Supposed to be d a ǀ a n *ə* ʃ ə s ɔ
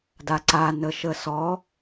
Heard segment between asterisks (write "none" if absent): ə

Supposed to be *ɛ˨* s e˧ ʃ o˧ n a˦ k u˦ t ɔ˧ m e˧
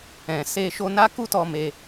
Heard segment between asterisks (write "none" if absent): ɛ̃˨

